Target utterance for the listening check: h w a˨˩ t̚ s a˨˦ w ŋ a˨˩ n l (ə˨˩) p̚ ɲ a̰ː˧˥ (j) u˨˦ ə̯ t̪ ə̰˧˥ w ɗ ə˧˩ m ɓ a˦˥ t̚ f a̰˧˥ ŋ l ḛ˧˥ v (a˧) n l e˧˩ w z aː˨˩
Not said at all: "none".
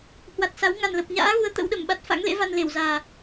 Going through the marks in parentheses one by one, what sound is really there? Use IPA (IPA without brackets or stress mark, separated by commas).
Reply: ə˨˩, ɣ, a˧